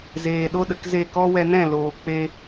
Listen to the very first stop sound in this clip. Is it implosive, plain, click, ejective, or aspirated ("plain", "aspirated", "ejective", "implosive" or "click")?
implosive